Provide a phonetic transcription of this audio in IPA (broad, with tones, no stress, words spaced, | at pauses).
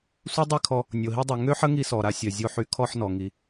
sʷe˦dˤi˦˨kʰɔ˧ | nʲo˨ɦi˧dˤy˨ ŋø˦ħə˦ ŋi˧sɔ˨ ɾa˧sʲœ˨ zʲo˧ħy˧ kʰɔ˧ħnɔ˨ ŋi˧